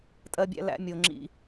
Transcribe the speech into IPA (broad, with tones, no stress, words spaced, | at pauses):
tʼɜ˦bʲæ̰˦ læ̰˦ mʲo˨ ŋ͡ǁḭ˦